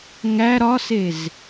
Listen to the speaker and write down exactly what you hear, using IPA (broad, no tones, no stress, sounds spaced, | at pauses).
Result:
ŋ æ ɾ ɒ s e z